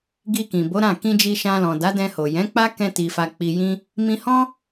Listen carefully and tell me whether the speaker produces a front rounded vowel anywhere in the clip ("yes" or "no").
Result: no